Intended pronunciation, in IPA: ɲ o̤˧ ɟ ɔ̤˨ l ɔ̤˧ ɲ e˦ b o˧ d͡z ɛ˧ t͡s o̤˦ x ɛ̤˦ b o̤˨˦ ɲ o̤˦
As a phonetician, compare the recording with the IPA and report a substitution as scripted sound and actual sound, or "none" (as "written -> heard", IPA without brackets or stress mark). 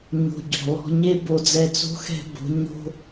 none